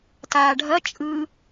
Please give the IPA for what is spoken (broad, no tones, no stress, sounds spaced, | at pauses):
t aː ɖʱ ɐ t͡ʃʼ ɯ